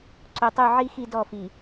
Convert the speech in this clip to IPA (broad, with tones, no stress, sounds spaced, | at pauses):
ǀ o˨ tˤ u˦˨ ʕ i˦ x i˦ d ɔ˦˨ f i˨